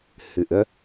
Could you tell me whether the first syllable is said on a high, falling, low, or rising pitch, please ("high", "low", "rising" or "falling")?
rising